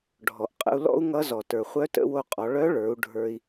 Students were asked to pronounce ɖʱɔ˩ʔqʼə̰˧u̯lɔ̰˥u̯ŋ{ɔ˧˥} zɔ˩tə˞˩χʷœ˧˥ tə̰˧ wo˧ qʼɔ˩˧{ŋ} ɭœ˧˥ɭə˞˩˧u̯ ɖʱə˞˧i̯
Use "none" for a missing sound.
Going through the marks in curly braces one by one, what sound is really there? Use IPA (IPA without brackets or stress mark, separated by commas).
ʌ˧˥, none